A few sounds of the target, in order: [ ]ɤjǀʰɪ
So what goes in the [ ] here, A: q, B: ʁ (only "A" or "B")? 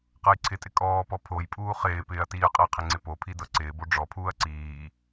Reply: A